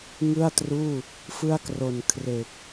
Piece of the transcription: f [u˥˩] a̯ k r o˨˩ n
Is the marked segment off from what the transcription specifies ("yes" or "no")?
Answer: yes